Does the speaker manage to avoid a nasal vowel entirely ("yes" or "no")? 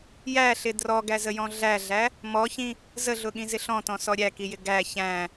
no